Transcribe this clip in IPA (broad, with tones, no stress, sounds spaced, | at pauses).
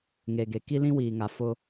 ŋ e˨ ɡ e˨ k i˦ l ĩ˦ w iː˨ ŋ a˨ f ʊ˦